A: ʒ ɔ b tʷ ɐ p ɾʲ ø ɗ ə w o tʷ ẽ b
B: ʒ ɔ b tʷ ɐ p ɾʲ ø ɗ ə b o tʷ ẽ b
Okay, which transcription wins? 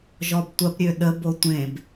B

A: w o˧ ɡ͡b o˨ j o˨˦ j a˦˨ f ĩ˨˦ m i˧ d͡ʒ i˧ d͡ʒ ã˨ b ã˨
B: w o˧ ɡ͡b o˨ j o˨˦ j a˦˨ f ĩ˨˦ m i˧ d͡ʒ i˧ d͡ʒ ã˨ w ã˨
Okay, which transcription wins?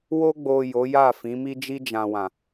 B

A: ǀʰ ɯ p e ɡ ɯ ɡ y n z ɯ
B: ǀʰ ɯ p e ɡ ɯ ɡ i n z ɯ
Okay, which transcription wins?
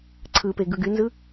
A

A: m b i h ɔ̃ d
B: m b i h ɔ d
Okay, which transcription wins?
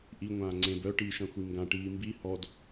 B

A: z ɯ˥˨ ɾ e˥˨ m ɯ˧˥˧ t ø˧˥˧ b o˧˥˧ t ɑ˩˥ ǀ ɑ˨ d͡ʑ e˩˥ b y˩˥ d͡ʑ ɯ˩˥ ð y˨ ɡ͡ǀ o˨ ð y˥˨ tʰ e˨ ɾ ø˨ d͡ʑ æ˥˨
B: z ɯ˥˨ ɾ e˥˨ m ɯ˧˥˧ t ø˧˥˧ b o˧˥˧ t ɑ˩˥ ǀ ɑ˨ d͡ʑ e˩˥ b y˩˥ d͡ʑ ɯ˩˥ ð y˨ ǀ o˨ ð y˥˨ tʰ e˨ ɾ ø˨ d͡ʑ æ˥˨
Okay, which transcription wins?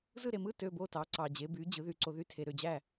B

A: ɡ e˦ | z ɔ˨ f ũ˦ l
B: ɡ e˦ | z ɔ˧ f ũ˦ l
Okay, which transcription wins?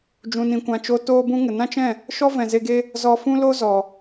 B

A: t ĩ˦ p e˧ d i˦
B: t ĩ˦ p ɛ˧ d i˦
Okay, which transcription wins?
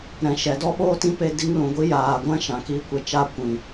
A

